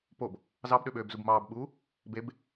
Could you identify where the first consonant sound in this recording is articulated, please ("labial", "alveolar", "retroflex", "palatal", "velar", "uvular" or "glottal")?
labial